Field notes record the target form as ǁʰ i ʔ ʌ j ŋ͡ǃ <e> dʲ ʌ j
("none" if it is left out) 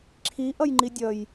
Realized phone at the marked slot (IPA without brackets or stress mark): i